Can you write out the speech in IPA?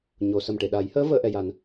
ɲ o˨˩˨ s ə˨˩ m ʈ e˨˩˨ ɗ a˨˩˦ j h əː˧˥ v əː˨˩˦ ʔ ɛ˨˩˨ j a˨˩˦ n

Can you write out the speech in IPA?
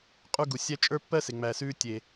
qʼ u˦ ɡ u˨ sʲ æ˦ t͡ʃʼ ə˞˦ pː ɜ˦ s e˨ ŋ͡m æ˨ s ʉː˧ tʲ e˨

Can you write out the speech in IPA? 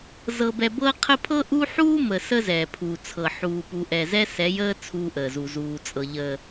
z ɤ˦ b ɛ˦ b ɤː˦ qʰ ə˦ pʰ ɤ˦ ʔ u˦ ħ uː˦ m ə˨ s ə˦ z ɛː˨ pʰ u˨ t͡sʰ ɤ˨ ħ uː˨ p u˨ ʔ ɛ˨ z ɛ˦ s ɛ˨˦ j əː˦ t͡sʰ uː˦ ʔ əː˨ z u˨ z uː˨ t͡sʼ ɤ˨ ʎ ə˨

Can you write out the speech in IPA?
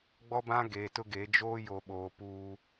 ɡ͡b ɔ˦ b ã˦ ɡ eː˨ t ʊ˦ ɡ eː˨˦ d͡ʒ oː˦ j o˨ ɓ oː˨ p uː˦

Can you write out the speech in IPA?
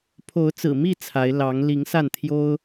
pʰ o˨˦ ʊ̯ t͡s ɹ̩˨˩ m i˥˨ t͡sʰ a˨˦ ɪ̯ l ɑ˨˦ ŋ l i˨˦ ŋ s a˥˨ n t̪ʰ j o˦ ʊ̯

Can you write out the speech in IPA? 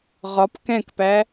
ʁ ɒ p k ɛ̃ k p æ

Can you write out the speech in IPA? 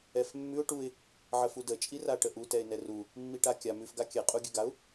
ɛ f mː ʉ ʊ̯ ʈ u ɪ̯ | ʕ ə f u d ə t͡ʃʼ i r a ʈ ə ʔ u t ɛ ɪ̯ n ɛ r u | mː i ʈ a kʲ a m ʉ f ɡ a kʲ ɛ qʼ u ɡʲ ʉ ɡ a ʊ̯

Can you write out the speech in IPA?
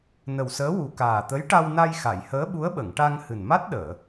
n ə˨˩ w s əː˧˥ w u˨˩ k aː˨˩ t̪ ə˧˥ j ʈ a˧ w n a˧ j x a˨˩˨ j h əː˧˥ ɓ u˧˥ ə̯ ɓ ə˨˩˨ ŋ ʈ a˧ ŋ h ɨ˨˩ n m a˦˥ t̚ ɗ əː˨˩˨

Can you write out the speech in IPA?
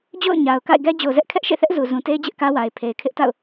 d͡ʑ o̰˦˨ ʊ̯ ɲ a˨ ʊ̯ k a̰˦˨ ɪ̯ ɡ ɛ˦ d͡ʑ o˨ z ɛ˦ ʔ kʰ ɛ˦ ʔ ʃ ḛ˦˨ θ ɛ˦ ʔ z u˨ z ũ˨ t e˦ ɪ̯ d͡ʑ ɪ˦ ʔ k ä˦ w a˨ ɪ̯ pʰ e˨ ɪ̯ kʰ ɪ˦ ʔ t a̰˦˨ ʊ̯

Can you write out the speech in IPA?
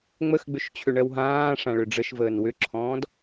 ŋ͡m ə x ɡ͡b ʏ ʃ t͡ɕʰ ʏ ɳ ɜ w ɦ ãː ʂ ã ɭ ʏ ɖ͡ʐ ə ʃ v əː n w ʏ ǁʰ ɔ̃ː d

